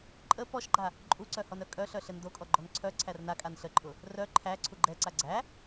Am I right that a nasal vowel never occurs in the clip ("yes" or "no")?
yes